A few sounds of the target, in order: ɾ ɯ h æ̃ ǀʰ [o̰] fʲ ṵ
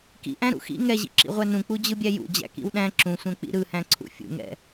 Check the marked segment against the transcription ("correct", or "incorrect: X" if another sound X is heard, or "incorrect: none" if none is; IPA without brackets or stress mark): incorrect: ṵ